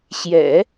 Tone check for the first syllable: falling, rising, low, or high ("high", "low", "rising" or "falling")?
low